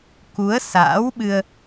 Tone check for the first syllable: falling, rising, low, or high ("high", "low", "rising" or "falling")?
rising